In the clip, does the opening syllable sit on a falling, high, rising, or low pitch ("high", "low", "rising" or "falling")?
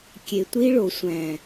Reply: low